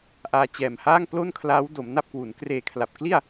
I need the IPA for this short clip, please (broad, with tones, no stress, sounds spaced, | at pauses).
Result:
ʔ aː˧ t͡ɕ ɛː˨˩ m h aː˥˩ ŋ p l o˥˩ n kʰ l aː˦˥ w d o˩˦ m n a˥˩ p̚ k w u˩˦ n k r eː˨˩ kʰ l a˨˩ p̚ k l i˥˩ a̯